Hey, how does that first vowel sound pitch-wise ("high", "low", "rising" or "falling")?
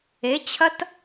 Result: rising